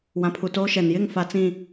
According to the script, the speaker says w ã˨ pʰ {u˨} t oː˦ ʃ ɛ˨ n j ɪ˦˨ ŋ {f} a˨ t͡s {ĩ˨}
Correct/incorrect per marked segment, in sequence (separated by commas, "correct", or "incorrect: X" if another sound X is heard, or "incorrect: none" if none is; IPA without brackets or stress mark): correct, correct, correct